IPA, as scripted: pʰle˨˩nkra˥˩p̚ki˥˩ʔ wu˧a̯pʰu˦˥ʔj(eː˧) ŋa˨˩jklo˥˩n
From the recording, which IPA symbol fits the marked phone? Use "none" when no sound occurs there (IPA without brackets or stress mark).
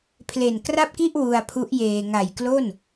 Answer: eː˧